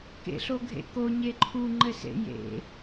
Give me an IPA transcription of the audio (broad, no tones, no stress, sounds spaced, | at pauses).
k ḛ ɬ o ɡʱ ḛ k o ɲ e ǃʰ u ŋ͡ǃ ɘ s ḛ j ḛ